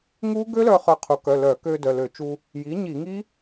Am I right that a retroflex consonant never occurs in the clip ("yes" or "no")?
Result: yes